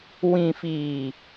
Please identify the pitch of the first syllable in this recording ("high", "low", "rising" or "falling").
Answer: low